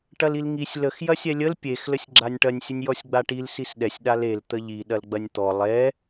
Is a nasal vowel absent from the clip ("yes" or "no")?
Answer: yes